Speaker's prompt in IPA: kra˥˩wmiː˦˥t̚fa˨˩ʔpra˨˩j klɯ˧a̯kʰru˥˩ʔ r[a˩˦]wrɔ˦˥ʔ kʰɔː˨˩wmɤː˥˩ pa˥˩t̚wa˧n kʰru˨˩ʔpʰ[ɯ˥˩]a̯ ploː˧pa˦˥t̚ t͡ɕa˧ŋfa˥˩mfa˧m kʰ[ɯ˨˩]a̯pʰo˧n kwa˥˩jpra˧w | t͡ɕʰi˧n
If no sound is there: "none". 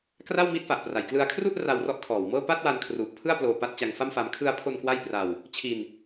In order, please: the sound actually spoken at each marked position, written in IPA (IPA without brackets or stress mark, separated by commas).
a˧, ɯ˥˩, ɯ˧